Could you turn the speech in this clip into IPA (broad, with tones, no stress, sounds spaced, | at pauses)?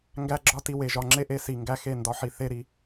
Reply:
ŋ ɡ æ˧ ɡ͡ǁ ɒ˦ t i˧ w e˨ ʒ ɒ˨ ŋ͡ǁ e˦ ʔ e˧ s i˨ ŋ ɡ æ˧ x e˦˨ n d ɒ˦ ħ i˧ θ e˦ ɾ i˧